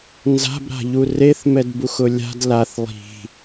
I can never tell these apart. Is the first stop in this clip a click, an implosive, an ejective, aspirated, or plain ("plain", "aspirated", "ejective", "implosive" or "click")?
plain